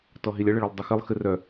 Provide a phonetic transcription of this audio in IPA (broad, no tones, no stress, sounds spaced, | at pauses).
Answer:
t ɔ ɦ i lʲ ə ɭ ə ɭ œ lˠ dˤ ɨ x ɨ lˠ x ɨ r œ